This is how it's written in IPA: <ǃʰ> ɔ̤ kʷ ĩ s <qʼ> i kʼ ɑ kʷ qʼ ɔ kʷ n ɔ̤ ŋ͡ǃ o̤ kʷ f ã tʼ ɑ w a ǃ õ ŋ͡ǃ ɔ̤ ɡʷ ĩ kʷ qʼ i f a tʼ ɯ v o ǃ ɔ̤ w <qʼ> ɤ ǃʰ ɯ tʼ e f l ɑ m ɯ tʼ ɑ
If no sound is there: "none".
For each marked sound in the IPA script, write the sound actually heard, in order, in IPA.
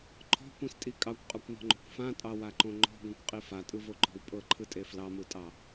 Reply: ǃʰ, tʼ, pʼ

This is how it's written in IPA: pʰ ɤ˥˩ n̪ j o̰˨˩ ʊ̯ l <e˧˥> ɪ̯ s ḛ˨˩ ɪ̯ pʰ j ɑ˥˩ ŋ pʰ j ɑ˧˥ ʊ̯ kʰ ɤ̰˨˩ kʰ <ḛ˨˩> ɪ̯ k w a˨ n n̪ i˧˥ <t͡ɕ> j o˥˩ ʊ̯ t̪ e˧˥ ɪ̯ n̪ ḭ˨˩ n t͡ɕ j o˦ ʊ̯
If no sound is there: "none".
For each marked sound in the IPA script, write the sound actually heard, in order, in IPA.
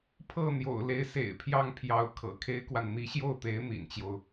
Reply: e˧˥, e˥, ɕ

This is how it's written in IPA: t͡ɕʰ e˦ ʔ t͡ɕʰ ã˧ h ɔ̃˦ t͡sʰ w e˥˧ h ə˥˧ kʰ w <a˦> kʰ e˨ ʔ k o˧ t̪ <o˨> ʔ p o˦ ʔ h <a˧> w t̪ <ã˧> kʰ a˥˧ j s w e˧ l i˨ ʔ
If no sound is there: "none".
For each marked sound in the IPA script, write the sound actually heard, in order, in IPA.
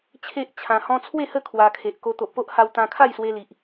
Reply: a˧, o˨, a˧, ã˧

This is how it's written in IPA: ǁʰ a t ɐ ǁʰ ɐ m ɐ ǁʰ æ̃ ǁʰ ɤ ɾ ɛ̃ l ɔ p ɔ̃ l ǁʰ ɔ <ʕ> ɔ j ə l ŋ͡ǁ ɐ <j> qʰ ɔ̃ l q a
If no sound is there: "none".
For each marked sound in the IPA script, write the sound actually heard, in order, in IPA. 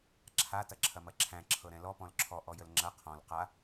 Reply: ʔ, none

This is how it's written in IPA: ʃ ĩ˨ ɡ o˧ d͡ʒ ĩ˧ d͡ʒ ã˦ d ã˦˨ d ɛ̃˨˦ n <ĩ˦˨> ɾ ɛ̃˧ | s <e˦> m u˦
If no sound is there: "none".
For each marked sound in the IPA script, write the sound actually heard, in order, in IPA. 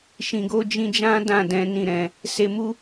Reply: ĩ˦˨, e˧

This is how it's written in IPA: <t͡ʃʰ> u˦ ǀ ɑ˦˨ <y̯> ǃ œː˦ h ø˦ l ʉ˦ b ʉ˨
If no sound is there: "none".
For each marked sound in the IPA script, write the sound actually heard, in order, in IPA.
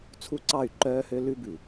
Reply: t͡sʰ, y̯

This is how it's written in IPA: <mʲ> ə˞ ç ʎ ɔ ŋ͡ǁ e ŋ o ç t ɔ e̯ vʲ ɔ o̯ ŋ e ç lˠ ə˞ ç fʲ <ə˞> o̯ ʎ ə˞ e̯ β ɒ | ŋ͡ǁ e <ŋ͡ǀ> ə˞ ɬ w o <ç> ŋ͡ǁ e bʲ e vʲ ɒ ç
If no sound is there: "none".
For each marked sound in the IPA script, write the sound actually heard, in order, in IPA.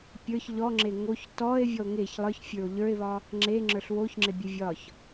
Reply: pʲ, ə˞, ŋ͡ǁ, ç

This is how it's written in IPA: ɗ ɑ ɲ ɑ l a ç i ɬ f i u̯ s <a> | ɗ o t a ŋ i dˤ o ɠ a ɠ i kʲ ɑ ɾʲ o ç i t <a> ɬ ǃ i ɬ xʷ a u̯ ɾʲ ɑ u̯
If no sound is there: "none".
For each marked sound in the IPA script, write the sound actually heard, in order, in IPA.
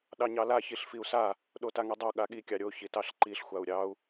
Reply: a, ɑ

